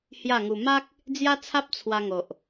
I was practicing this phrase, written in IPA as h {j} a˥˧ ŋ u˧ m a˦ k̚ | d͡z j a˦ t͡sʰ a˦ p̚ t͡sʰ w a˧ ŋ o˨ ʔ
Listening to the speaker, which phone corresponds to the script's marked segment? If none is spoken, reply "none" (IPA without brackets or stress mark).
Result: j